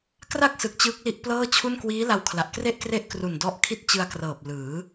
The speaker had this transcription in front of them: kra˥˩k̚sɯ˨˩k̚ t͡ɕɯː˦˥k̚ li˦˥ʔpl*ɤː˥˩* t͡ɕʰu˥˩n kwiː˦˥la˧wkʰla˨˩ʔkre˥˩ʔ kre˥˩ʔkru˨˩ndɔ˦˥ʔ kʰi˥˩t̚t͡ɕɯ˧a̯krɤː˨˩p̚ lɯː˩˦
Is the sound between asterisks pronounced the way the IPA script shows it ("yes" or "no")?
yes